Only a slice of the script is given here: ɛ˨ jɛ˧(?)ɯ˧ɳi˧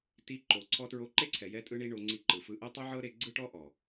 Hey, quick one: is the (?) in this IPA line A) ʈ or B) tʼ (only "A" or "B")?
B